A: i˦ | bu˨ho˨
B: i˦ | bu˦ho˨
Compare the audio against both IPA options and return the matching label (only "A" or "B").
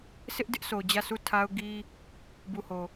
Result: A